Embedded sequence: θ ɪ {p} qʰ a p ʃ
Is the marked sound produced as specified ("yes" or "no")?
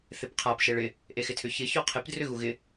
yes